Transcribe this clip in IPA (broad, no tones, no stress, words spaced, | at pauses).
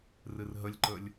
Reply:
rɨrɦəlʲǃəlʲ